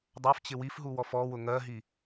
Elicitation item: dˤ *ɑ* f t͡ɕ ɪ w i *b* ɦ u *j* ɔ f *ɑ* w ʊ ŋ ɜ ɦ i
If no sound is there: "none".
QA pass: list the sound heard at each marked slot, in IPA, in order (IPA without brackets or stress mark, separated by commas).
ɑ, f, w, ɔ